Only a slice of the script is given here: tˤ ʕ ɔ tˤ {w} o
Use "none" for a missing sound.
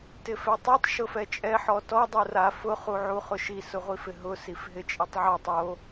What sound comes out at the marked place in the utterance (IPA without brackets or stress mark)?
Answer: w